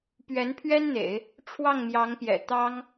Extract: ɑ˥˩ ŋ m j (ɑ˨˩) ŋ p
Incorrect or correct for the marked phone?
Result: incorrect: ɑ˧˥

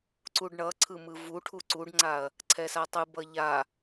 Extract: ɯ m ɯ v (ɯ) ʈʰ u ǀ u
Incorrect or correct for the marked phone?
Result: incorrect: u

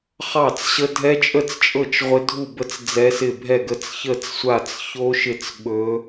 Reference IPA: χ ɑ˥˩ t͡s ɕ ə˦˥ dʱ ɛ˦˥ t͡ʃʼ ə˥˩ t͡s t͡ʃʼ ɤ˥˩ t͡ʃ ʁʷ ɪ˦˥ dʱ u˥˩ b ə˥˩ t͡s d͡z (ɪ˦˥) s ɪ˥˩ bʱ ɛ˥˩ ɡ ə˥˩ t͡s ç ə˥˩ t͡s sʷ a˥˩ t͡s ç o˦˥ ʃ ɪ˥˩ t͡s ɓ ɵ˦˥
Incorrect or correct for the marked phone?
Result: incorrect: ɛ˦˥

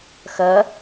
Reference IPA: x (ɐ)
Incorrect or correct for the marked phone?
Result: correct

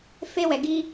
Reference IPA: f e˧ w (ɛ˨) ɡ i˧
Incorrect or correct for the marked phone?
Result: correct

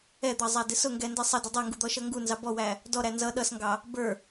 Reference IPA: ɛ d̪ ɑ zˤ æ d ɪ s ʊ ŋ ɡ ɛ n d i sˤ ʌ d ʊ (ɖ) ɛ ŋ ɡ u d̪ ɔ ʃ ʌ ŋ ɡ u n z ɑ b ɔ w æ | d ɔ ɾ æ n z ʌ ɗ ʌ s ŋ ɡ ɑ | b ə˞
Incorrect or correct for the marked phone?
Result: incorrect: dˤ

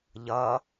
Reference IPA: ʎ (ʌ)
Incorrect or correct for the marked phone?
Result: correct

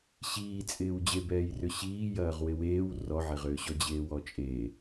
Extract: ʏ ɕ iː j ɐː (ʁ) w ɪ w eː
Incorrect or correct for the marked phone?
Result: correct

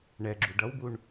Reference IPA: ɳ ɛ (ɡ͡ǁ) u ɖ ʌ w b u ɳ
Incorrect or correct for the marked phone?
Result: correct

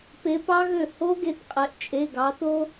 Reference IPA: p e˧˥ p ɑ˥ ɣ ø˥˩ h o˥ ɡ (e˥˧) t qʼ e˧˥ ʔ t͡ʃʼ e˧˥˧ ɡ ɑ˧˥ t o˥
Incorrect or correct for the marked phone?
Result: correct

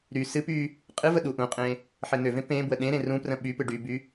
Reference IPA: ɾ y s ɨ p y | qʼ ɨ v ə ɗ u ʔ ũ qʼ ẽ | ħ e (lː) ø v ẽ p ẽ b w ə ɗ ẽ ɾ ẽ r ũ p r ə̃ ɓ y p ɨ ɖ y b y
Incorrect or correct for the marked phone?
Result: incorrect: n̪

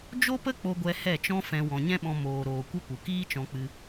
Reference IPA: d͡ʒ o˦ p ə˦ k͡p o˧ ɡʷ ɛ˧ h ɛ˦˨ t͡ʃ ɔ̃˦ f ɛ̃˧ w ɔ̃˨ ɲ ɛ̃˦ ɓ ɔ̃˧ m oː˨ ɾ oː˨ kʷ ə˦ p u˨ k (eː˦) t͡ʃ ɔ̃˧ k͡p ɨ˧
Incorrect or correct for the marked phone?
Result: incorrect: iː˦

